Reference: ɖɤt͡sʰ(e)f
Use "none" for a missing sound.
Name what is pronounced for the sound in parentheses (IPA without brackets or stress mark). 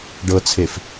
e